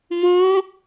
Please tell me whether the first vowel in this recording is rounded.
yes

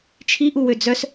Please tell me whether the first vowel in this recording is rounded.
no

